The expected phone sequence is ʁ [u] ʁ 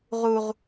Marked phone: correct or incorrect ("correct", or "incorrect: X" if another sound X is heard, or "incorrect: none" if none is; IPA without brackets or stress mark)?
correct